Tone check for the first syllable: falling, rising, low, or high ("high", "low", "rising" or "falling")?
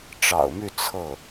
low